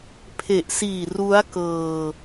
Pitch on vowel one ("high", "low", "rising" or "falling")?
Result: low